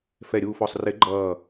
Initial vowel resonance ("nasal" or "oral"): oral